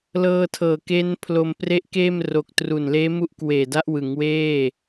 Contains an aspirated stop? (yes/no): yes